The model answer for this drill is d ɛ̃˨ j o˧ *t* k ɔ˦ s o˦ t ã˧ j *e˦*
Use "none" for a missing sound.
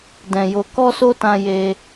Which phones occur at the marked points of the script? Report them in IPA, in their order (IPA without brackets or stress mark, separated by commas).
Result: none, e˧